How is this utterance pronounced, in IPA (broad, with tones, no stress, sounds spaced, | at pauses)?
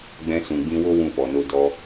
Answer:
ɡ͡b ɛ̃˧ s ũ˨ ɡ͡b ĩ˧ w o˦ w ũ˦˨ f ɔ˨ n o˧ d ɔ˧